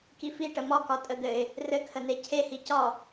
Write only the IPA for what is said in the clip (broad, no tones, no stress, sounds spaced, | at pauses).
k i f i ʈ ə m ɒ k ɒ tʼ ə d̪ ɘ ɪ̯ | r ɘ kʰ ə n e cʰ e h i c ɒ